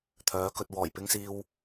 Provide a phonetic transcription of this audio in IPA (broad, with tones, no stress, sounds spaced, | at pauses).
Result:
t̪ʰ œː˨˥ k ɵ˧ t̚ w ɔː˨˩ j p ɪ˧ ŋ s iː˧ w